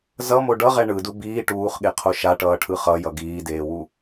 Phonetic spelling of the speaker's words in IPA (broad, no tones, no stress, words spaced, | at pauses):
zʌmo ɖʌʁɛ ɳɯdu biː ʈuːχɠeqʰo ʃaʈʌːʈʰɯ χʌjʌ ɡiːdeːwu